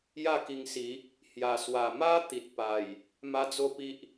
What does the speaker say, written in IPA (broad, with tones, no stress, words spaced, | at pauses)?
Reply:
ja˥˧ki˧ŋ si˨˦ | hja˨˩swa˨˩ma˦ t̪i˨t̚pa˨˩j | ma˦d͡zo˥˧pi˦ʔ